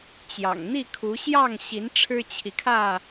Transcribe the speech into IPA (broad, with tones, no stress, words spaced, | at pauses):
t͡ɕjɑ̰˨˩ŋn̪i˥˨kʰu˨˦ ɕjɑ˥˨ŋɕi˨˦n ʈ͡ʂʰɻ̩˦t͡ɕʰi˨kʰä˥˨